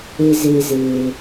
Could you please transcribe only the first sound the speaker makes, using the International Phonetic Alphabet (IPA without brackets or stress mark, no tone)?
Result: e